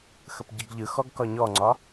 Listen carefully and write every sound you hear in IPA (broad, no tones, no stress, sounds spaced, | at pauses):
x ə p ɟ ɯ ɡ ʎ ɯ x ɔ ɡ k ɒ ɲ ɔ ŋ͡ǀ ɒ